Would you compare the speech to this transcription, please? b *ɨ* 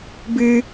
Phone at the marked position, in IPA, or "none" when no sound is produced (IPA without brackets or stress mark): ɨ